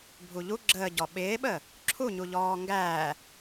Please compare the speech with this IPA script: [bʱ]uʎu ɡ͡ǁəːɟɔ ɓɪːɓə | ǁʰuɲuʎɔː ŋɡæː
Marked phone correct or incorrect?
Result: correct